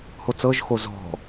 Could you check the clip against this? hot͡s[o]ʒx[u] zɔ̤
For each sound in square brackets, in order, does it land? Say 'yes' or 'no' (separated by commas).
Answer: no, no